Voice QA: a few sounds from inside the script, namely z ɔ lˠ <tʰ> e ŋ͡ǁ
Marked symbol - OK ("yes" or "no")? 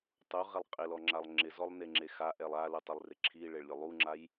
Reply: no